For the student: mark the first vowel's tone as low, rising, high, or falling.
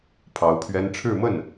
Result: rising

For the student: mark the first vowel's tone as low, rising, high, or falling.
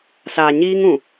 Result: low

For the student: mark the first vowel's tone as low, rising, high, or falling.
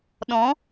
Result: rising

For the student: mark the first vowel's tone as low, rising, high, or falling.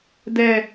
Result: high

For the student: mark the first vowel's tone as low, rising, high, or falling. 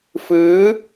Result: rising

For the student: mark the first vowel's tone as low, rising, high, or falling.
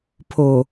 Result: low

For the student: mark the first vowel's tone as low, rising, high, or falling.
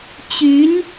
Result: rising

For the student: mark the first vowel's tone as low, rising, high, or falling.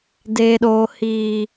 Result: low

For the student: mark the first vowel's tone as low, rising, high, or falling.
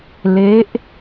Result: rising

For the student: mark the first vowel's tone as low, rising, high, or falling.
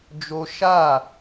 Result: high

